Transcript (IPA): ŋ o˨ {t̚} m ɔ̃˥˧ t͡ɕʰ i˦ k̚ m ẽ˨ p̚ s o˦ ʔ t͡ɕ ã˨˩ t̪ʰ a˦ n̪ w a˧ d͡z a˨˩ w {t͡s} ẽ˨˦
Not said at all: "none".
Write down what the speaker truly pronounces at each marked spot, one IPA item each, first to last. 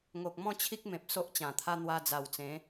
k̚, t͡s

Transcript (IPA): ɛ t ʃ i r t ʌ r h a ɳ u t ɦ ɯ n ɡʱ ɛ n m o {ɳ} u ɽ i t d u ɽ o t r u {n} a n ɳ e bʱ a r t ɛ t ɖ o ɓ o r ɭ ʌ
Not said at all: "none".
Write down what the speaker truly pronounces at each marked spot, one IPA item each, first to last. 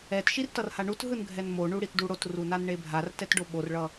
ɳ, n

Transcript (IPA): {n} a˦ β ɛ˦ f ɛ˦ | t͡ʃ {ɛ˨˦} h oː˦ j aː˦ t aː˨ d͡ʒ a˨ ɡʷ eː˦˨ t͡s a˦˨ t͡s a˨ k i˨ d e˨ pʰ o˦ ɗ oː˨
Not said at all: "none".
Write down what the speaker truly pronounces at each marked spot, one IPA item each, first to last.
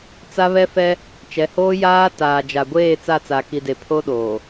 t͡s, ɛ˨˦

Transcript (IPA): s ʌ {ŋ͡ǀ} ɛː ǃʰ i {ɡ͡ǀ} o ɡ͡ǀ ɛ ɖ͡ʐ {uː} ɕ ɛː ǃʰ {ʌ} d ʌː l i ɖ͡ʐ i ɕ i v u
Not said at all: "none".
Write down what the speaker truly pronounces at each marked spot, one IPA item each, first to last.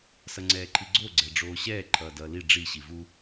ŋ͡ǀ, ɡ͡ǀ, oː, ʌː

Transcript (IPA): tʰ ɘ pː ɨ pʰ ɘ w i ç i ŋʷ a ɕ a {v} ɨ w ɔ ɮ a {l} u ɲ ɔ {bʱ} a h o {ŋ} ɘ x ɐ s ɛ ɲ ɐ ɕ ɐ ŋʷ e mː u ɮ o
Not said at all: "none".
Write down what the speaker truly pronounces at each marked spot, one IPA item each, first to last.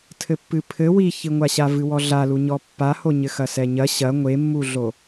v, l, pː, ɲ

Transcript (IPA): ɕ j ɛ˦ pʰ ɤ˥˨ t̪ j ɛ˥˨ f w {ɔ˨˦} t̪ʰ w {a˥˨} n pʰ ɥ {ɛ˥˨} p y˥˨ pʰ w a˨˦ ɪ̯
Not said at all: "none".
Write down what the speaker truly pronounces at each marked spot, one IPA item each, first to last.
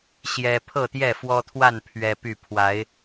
ɔ˦, a˥˨, ɛ˦

